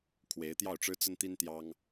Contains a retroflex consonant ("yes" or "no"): yes